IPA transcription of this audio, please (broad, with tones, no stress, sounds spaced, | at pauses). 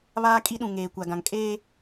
β aː˦ kʼ i˦ ɗ ũ˨ ŋ eː˨ kʷ a˨ ɡ ã˨ ŋ kʼ eː˦